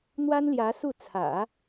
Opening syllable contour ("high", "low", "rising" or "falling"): high